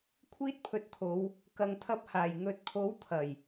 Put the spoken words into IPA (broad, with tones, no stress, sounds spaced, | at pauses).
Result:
kʷʰ iː˥ t̚ pʰ ɵ˧ t̚ t̪ʰ o˨˧ w | k ɐ˨ ŋ t̪ʰ ɐ˧ p̚ h aː˨˩ j ŋ ɵ˨ t̚ kʰ o˨˥ w t̪ʰ ɐ˨˩ j